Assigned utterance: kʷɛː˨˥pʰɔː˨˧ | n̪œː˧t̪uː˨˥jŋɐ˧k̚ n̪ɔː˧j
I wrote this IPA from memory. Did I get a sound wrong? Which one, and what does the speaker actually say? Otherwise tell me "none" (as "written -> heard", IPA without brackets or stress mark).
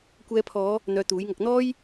ɛː˨˥ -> ɛː˨˧